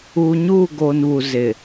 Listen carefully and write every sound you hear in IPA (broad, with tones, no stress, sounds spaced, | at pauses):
uː˨ ɲ uː˦˨ ɡ o˨ n β u˨ z ɪ˨